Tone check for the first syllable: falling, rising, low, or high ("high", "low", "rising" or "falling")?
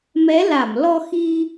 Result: rising